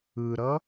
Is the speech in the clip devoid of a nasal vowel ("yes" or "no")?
yes